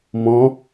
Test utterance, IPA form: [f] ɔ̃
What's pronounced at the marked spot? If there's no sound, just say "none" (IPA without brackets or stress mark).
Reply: m